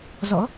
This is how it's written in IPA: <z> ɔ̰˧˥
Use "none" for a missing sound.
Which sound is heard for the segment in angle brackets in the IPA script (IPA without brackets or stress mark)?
z